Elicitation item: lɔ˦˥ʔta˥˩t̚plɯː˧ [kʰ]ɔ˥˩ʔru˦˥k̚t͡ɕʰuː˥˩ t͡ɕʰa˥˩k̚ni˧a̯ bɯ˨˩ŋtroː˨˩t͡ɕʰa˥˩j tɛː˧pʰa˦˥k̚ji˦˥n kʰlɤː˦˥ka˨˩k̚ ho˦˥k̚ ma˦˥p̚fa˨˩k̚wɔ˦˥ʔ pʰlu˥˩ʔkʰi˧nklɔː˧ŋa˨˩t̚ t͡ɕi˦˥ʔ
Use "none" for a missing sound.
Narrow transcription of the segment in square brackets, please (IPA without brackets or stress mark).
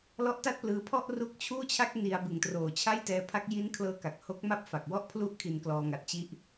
pʰ